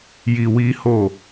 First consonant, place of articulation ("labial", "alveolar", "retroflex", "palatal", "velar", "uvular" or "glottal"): palatal